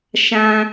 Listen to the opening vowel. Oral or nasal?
nasal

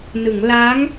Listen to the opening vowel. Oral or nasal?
oral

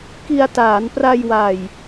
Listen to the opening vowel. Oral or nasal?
oral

